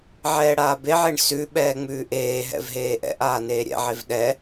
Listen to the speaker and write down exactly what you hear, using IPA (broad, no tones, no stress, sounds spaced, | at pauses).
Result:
ʕ ɛː ɽ aː b e ʕ e ɳ s ʉ ɓ ɛː ŋ͡m ʉː ʔ eː ɦ ɛ̰ v ɦ eː ʔ ɛ̰ ʔ aː n eː ɾʲ ɛ̰ ʕ e v ɗ ɛ